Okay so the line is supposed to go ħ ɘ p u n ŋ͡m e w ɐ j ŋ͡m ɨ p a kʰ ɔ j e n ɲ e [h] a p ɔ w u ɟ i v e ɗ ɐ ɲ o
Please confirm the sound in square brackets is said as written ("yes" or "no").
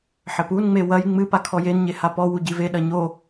yes